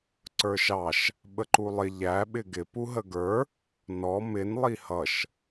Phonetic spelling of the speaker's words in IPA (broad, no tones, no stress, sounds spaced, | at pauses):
ǀ ə˞ ʃ ɑ ʃ | ɓ ə ǃ u lˠ ɪ ʎ æ ɓ ɪ ɡ ɪ p u ɦ ə ɡ ə˞ | n ɔ m ɪ n lˠ i h ʌ ʃ